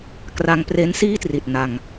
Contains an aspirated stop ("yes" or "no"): no